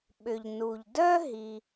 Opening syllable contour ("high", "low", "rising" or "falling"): low